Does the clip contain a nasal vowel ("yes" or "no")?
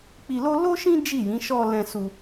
yes